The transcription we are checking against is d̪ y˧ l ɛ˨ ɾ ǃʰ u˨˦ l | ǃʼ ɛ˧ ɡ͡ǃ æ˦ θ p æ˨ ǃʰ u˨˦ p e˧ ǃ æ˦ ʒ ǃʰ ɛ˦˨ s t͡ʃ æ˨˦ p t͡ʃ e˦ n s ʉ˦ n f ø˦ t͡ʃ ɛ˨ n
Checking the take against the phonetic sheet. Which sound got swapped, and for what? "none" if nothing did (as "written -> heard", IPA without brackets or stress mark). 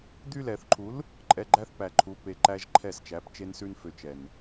ɾ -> θ